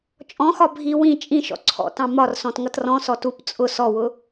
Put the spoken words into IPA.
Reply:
t͡ʃʼ ɔ̃ x ɒ bʱ i w ĩ t͡ʃʼ ĩ ʃ ɔ̰ ǀʰ ɔ̰ t ɑ̃ m ɒ r s ɔ̃ t ŋ ʌ t r ɔ̃ s ɔ t u p t͡sʼ ʊ s ɔ w ʊ

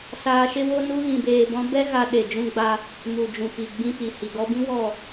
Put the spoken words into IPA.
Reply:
s aː˧ ʃ e˦ w o˦ n u˦ ɣ ĩ˧ b eː˧ b ɔ̃˦ b ɛ˦ ɣ a˧ ɗ e˨ d͡ʒ ũ˧ ɡ͡b a˧ | m u˨ d͡ʒ ũ˨ p i˨ ɡ͡b ĩ˧ p i˨ h i˨ ɡ ɔ˧ b ĩ˦ w ɔ˦˨

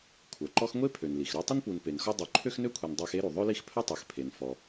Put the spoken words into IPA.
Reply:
kʷʰ œ˩ ǃ ɔ˥ x ŋʷ e˥ pʰ ø˩ n l i˩ x ɾ ø˦ tˤ ɪ˥ n p u˨ n p e˩ n x ɔ˦ dˤ ø˨ ǃʰ ø˥ x n ø˥ kʷʰ e˨ n dˤ a˦ x e˥ ɾ u˩ ðˤ ø˥ l i˦ x pʰ œ˥ tˤ ø˩ x pʰ e˩ n f ɔ˩

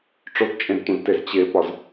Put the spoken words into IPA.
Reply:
ʈ͡ʂ o t t͡ʃʼ ẽ z tʷ ẽ z t e z t͡ɕ e p ɒ z

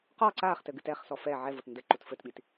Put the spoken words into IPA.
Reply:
q ɔ ǀ aː χ t ɘ ɡ ɨ t ɛ χ s ɔ f ɛ ʕ ɛ v o t n d ɘ ǃ u t f ɘ t ɓ i t

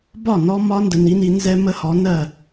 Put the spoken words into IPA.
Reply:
b ɒ˥˩ n ɔ˧˥ m ɒ˧˥ n d ə˩˥ n i˩˥ n i˧˥ n z ɛ˥ m ə˥ h ɔ˩˥ n ɜ˥˩

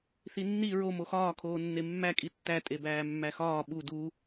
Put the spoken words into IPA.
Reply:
θ i nː i ɹ o m o x ɒː kʰ oː nː e mː æ kʼ i tː æ tʼ e b æː mː æ x ɒː ɓ u d u

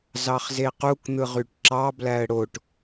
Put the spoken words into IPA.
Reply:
z ɑ χ z e q u k n̪ ɯ ʁ y ʈ ǁ ɑ b l æ ə̯ ɽ o ʈ

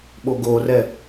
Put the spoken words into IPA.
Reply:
ɓ o ɡ o r ɛ

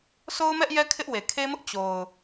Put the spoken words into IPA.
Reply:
sʰ o˦ ʊ̯ m ɛ˦ ʔ j ɛ˦ kʰ ɪ˦ ʔ w e˨ kʰ e˦ m ʊ˦ ʔ t͡ɕ o˨ ʊ̯

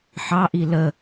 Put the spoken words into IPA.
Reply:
ħ ɑ ʔ i l ə

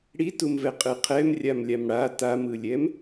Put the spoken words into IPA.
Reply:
ɽ i t u m v ɛ qʼ ɯ qʰ ɛ m rʲ a m lʲ a m ɽ a t a m ɯ lʲ ɛ m

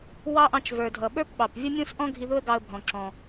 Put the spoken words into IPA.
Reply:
w ɑ˥ ʔ ɑ̃˧ t͡ʃ v ə˞˩ dʱ ʌ˩ ɓ ə˞˥ p ɓ ɑ˩ p vʲ ə˥ mʲ ũ˥ s ʔ ɔ̃˥ ɡʱ i˧ ð ʊ˥ ə̯ ɡ ɑ˧ ə̯ bʱ ɔ̃˩ ǁ ɔ̃˩

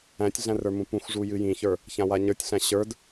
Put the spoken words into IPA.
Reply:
æ̃ tʲ ɮ æ̃ r ə˞ m ũ p ũ x ʐ u j ɨ j ĩ ç ə˞ | ç ã w a ɲ ə˞ tʲ ɬ æ̃ ɕ ə˞ d

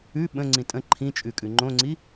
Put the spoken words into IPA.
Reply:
ʉ ɓ ə̃ ŋ͡ǀ ĩ tʼ ə̃ ǃʰ ĩ t͡ʃʼ ʉ kʼ ʉ ŋ͡ǃ õ ŋ͡ǀ i

